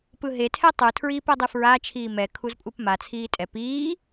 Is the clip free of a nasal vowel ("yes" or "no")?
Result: yes